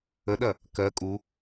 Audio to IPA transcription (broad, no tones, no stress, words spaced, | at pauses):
əɗɐ | kɜ kʼu